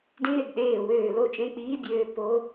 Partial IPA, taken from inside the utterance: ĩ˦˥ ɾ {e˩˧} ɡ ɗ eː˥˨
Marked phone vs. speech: correct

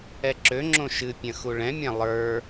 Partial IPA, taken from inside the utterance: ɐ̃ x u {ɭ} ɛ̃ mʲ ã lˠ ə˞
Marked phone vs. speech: correct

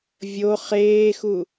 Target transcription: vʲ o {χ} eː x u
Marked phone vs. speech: correct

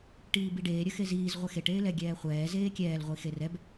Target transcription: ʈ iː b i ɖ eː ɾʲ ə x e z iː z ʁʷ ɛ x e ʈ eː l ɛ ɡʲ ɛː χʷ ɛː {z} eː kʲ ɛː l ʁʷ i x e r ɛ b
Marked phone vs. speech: correct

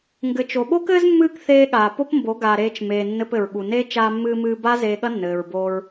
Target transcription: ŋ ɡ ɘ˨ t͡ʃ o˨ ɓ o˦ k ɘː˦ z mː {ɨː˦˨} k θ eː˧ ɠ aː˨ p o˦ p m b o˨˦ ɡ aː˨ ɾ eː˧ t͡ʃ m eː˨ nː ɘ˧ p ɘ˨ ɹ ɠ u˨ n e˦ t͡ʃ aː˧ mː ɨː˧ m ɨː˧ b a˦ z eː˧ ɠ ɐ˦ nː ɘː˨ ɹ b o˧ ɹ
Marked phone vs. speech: correct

